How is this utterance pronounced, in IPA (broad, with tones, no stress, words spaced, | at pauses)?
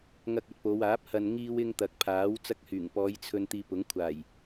ŋɐ˧k̚ɐ˨˥t̚po˨˧waː˨˥p̚ hɐ˨nŋiː˧wɪ˧ŋ t̪ɐ˨k̚pʰaː˨˥w t͡sɐ˧k̚hyː˨˩ŋpɔː˨˧j t͡sʰɵ˧n t̪iː˧pʊ˨˥ŋ kʷʰaː˨˩j